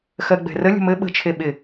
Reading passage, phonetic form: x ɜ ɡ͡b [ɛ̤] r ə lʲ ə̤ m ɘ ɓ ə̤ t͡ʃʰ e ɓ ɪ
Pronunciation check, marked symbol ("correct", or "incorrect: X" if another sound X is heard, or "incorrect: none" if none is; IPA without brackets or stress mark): correct